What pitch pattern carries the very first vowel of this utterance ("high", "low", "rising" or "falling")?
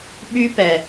high